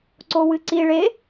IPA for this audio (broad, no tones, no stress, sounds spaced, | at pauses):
ǀ o w ɨ ǀ i ɭ e